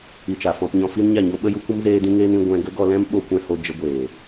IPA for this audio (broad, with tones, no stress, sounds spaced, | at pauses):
i˧ t͡ʃ a˨ f ɔ̃˧ p ɲ ɔ̃˧ f i˦ n ɲ a˦˨ ɲ o˦ ɓ ə˦ j u˦ kʷ ə˦ m z eː˦ d ĩ˦ ŋ eː˦ n ĩ˧ ɡʷ ɛ̃˧ ɡ ə˦ ɡ ɔ˧ l ɛ̃˦ m ɓ o˧ kʷ ɛ̃˧ h o˧ d͡ʒ ə˧ ɡʷ eː˨